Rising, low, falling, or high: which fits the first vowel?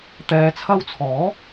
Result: low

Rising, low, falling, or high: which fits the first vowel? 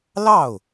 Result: falling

